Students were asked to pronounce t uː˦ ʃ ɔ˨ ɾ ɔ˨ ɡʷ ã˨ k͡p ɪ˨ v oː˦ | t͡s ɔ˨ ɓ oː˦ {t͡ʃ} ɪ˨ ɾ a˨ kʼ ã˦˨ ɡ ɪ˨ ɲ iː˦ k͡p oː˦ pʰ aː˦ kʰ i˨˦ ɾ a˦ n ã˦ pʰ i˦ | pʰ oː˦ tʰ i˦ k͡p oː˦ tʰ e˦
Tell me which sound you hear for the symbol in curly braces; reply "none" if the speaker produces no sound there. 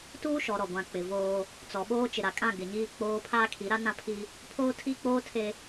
t͡ʃ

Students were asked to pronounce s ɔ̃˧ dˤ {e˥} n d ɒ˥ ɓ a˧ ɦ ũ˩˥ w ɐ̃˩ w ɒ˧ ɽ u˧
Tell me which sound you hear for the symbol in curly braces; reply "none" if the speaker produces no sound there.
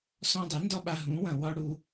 e˩˥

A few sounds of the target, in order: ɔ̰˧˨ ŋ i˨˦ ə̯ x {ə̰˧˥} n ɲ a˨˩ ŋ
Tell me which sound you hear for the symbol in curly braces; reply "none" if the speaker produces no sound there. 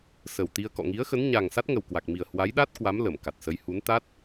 ə˨˦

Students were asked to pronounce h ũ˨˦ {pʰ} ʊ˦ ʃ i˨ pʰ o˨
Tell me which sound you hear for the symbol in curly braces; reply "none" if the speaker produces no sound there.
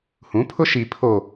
pʰ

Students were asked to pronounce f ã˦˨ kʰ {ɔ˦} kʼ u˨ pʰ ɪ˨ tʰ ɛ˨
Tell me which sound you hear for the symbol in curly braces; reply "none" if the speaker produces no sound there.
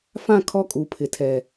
ɔ˦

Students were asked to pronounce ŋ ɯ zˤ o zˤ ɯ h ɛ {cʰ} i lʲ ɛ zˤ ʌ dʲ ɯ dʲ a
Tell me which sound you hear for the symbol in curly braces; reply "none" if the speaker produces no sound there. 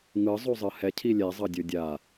cʰ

